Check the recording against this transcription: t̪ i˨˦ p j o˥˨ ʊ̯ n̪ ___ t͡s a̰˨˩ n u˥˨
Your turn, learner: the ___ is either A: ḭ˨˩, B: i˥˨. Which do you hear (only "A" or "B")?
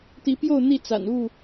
B